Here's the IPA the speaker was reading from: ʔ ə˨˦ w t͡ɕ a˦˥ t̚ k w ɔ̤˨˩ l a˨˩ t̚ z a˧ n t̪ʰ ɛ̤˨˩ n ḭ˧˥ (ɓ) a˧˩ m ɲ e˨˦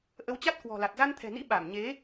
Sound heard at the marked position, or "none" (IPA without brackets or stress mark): ɓ